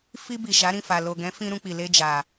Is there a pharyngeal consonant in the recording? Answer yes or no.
no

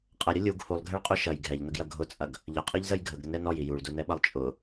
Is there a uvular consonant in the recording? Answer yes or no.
yes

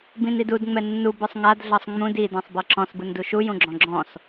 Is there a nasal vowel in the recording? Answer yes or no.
yes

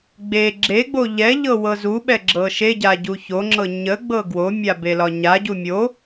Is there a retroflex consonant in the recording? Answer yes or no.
no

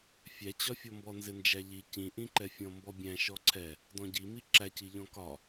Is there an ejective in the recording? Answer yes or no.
no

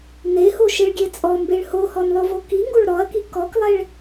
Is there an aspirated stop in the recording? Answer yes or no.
no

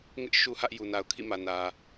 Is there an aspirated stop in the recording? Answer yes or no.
yes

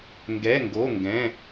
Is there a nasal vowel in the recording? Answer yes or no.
yes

